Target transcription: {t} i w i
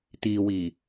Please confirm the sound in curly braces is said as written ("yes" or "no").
yes